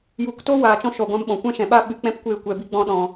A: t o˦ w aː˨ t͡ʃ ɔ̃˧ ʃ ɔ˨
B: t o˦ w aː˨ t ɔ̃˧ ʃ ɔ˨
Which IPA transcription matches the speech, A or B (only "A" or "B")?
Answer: A